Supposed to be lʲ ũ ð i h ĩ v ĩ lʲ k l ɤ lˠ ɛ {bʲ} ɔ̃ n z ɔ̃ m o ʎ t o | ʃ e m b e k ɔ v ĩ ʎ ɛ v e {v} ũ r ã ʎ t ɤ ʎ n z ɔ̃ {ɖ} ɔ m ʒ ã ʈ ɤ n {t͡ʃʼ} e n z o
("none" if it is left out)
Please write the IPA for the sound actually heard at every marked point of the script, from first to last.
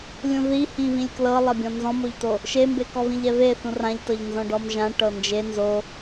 bʲ, θ, ɖ, d͡ʒ

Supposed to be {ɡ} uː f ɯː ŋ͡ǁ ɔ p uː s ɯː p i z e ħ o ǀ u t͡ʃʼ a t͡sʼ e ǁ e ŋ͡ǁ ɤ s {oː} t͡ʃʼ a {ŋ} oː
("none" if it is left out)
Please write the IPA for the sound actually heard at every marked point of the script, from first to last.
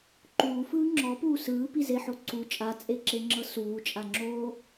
ǃ, uː, ŋ͡ǁ

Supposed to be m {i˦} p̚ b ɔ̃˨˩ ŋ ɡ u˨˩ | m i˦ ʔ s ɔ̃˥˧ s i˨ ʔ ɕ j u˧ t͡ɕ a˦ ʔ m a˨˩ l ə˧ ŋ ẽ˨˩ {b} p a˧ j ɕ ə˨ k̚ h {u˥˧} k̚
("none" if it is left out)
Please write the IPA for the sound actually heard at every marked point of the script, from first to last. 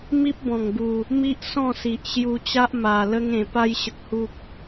i˦, none, u˨

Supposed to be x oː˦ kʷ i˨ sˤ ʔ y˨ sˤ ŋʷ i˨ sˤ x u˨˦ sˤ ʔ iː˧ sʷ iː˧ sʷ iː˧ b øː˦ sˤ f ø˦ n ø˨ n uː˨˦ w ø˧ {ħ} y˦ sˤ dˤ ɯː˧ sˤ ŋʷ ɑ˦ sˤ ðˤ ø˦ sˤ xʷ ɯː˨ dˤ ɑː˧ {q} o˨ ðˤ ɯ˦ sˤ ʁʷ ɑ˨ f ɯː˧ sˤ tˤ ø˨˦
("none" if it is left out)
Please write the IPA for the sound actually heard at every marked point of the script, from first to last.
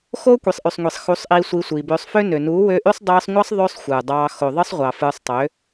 ʔ, x

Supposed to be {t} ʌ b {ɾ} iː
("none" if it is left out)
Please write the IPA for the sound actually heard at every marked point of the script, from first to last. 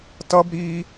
t, ɾ

